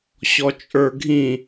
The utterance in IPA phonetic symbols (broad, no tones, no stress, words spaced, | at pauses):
ɕɔt͡ʃʼə˞ɡʱĩ